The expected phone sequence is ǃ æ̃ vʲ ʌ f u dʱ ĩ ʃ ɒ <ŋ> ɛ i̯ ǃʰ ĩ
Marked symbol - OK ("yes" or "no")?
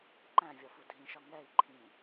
yes